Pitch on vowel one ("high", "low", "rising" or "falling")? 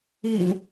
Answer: low